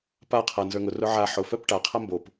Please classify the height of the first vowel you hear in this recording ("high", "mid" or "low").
low